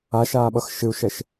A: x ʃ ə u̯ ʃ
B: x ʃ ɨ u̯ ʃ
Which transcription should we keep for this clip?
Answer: B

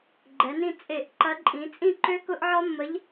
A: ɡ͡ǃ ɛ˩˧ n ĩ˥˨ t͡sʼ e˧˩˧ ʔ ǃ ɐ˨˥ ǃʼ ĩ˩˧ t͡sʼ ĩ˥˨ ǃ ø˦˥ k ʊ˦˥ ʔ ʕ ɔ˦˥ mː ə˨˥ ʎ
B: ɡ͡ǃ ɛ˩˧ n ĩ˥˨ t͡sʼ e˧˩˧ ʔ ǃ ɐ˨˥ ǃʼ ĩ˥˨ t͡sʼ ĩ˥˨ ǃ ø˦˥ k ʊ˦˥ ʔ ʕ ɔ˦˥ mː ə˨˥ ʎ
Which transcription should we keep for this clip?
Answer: A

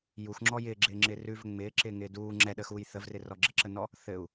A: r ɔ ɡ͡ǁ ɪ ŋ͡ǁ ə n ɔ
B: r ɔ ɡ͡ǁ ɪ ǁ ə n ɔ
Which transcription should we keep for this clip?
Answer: B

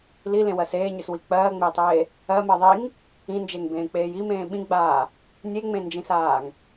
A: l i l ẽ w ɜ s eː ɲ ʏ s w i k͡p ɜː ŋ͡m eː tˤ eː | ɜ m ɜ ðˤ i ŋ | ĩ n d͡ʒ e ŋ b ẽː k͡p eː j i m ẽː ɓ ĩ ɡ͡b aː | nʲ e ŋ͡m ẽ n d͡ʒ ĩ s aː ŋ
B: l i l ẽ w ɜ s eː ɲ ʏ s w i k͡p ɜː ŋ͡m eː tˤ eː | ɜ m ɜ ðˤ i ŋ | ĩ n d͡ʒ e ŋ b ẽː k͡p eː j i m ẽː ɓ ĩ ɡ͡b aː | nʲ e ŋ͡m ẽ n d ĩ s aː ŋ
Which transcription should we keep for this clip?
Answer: A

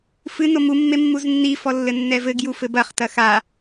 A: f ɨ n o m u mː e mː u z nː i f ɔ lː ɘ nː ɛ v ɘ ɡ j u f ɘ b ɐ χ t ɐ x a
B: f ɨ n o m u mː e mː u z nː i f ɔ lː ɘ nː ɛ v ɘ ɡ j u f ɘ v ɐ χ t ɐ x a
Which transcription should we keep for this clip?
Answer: A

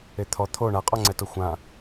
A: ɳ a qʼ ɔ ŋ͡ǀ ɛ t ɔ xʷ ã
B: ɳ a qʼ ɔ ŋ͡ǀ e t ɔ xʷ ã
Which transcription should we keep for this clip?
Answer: A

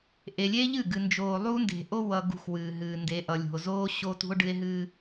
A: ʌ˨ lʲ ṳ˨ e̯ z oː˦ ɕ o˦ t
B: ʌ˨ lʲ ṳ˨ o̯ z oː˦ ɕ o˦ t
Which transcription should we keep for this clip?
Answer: B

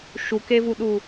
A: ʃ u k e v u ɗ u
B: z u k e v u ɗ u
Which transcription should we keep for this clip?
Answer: A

